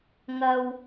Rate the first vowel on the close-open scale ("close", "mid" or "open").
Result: open